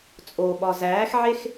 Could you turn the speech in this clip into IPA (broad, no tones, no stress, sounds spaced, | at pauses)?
t͡sʼ o ɓ ɒ z æː x ʕ e x